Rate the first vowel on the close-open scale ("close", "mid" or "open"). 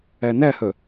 open